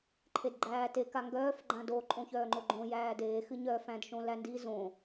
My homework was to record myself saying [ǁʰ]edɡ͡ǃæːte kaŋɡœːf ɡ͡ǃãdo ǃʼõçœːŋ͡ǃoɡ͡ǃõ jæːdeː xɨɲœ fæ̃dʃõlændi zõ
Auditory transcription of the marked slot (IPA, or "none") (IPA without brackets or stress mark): ǃʰ